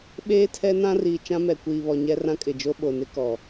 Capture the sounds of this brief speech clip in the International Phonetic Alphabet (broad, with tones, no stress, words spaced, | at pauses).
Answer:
ɓeː˦tʰɛ˦ nã˦riː˨ t͡ʃã˦mɛ˨kʷiː˨βɔ˨ ɲɛ˦ rã˦kʼɪ˨d͡ʒo˦ ɓo˨nɪ˦kɔ˨